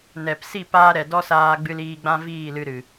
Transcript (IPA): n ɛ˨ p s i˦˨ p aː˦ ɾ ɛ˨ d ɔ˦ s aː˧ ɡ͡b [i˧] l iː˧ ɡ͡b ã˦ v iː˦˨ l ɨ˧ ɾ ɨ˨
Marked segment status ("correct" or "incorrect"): incorrect